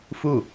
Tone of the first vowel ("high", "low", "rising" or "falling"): falling